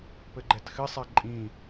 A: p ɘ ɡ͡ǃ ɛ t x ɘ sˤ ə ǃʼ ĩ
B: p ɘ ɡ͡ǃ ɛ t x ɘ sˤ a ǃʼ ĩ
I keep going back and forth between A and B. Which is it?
B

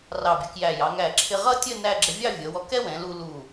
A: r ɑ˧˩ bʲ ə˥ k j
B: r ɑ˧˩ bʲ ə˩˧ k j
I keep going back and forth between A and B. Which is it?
B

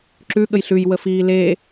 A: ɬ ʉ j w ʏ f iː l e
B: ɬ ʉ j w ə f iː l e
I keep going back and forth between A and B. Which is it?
B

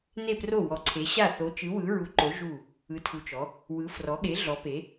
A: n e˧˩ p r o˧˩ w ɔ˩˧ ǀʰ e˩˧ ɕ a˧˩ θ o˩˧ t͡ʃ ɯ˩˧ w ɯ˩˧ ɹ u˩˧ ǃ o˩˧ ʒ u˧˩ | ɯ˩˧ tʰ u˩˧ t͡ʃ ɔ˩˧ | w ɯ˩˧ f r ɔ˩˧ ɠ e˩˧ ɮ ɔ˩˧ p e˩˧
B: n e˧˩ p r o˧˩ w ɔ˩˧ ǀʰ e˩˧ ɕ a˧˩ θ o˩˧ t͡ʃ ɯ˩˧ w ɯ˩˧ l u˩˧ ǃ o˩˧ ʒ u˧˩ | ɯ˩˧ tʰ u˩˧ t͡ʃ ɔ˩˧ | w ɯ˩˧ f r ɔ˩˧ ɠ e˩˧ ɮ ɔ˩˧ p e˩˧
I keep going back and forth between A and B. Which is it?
A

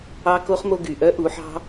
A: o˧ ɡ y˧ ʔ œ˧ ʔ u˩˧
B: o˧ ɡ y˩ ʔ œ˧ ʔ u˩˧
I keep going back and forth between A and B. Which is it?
B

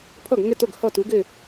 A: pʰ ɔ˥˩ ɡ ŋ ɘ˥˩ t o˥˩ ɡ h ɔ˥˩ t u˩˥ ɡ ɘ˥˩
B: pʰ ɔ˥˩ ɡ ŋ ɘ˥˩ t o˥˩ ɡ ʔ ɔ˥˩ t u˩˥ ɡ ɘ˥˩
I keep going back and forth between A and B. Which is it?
A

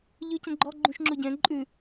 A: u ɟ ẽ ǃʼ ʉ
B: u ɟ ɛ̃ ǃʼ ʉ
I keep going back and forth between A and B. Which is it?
B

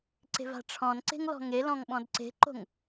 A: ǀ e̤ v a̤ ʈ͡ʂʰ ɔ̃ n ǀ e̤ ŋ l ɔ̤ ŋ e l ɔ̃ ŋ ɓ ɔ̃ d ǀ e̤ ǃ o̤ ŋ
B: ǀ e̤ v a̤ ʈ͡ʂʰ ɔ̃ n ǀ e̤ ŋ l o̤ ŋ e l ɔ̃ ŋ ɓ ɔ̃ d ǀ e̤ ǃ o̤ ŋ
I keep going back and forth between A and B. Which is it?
A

